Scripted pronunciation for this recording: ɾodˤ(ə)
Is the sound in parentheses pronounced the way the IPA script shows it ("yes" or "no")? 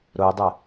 no